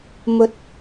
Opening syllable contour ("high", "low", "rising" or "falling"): rising